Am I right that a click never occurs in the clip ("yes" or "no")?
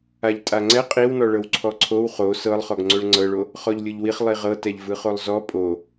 no